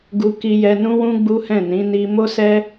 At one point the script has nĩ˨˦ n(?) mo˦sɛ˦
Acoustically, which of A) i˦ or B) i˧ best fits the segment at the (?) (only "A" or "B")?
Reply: B